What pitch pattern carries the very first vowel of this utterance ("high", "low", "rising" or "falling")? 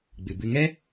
low